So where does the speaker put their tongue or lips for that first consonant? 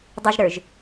tongue tip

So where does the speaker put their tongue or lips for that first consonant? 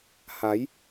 throat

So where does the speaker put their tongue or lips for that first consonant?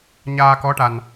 palate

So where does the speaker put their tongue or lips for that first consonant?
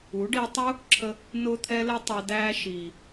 retroflex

